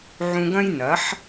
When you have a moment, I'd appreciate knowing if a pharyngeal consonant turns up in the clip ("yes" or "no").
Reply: yes